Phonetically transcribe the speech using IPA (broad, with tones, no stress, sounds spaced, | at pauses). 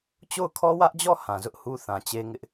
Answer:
t͡ɕ o˦˨ ʊ̯ kʰ ɔ˦ w ä˦ ʔ d͡ʑ ɔ˦˨ h ã˨ z ʊ˦ ʔ h u˦ θ ã˨ t͡ɕ e˦ ŋ ɪ˦ ʔ